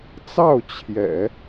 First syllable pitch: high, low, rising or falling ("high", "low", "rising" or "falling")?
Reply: falling